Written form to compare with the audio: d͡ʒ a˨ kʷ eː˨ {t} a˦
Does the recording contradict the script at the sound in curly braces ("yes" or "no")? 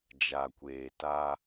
no